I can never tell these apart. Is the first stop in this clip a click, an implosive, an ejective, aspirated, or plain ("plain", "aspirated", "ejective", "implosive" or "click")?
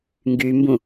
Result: plain